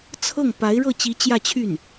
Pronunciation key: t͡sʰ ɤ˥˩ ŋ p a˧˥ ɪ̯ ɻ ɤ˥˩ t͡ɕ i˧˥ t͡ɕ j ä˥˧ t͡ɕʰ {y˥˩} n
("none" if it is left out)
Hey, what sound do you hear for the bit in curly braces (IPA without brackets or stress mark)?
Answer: y˥˩